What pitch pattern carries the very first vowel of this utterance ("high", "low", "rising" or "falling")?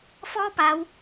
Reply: high